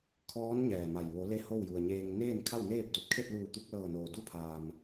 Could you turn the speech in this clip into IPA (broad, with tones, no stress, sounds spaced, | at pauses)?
kʰ ɔː˧˥ n ɲ ɛː˧˩ m a˧˩ j ʋ o˩˧ l e˧ h o˥˨ w j u˩ ə̯ ɲ eː˧ ŋ n eː˥˨ n kʰ a˥˨ w n eː˥˨ p̚ d o˧˩ t̚ kʰ e˥˨ t̚ l uː˧˩ t̪ u˧ k̚ l ɤː˧˩ n oː˩ d u˥˨ pʰ aː˩ m